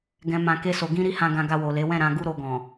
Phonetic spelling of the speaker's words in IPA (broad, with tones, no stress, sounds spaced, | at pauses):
ɡ ɛ̃˨ m ã˨ k e˧ s o˨ ɡ ĩ˧ ɾ i˧ h ã˧ ɡ ã˧ ɡ a˧ w o˨ l e˨˦ w ɛ̃˦˨ ɾ ã˧ ɡ u˦ ɾ o˧ ɡ ɔ̃˨